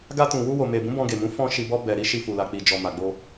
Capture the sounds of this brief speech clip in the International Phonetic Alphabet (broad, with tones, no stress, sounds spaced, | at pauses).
ɡ a˧ t ũ˨ w u˧ w o˨ m e˨ b ũ˨˦ b ɔ̃˧ ɡ e˨ m ũ˨˦ f ɔ̃˧ ʃ i˨ b ɔ˧ b ɛ˨ ɾ i˧ ʃ i˨ f u˨ l a˨ k͡p i˨ d͡ʒ ɔ˨ m a˨ ɡ͡b o˧